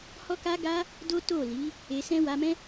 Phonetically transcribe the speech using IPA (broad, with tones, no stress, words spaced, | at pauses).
hɔ˦ka˦ɡa˦ | do˦ to˦˨li˨˦ | e˧sɛ̃˦ wa˧mɛ̃˦